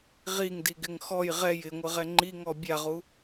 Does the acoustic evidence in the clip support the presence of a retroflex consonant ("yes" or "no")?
no